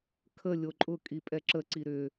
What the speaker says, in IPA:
kʰ ə lʲ o ǃʼ ʊ kʼ i pʼ ɛ ǁ ə ǀ i ɾ ʏ

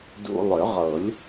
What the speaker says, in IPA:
d ṵ˧ lˠ ʏ˨˩˦ ʁ ɤ˨˩˦ lʲ

